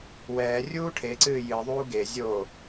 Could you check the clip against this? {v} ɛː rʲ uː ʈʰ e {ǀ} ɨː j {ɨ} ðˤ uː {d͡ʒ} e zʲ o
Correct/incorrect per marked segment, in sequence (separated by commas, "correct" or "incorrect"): incorrect, correct, correct, incorrect